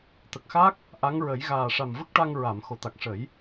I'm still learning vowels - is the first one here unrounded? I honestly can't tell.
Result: yes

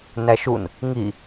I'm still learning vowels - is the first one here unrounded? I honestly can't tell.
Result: yes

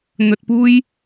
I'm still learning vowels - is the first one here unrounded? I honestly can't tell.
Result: no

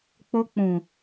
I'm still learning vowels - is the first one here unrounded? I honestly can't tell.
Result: no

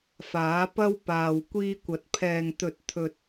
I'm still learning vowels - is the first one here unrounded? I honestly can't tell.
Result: yes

